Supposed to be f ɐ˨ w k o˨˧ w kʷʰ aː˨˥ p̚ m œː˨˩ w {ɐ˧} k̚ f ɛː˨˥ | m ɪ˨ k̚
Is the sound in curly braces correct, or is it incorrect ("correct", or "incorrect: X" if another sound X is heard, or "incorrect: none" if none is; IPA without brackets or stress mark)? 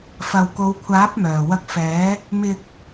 correct